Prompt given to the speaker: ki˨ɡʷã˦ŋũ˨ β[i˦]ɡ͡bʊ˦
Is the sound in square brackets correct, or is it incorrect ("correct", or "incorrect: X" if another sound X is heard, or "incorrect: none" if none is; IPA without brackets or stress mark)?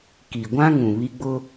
correct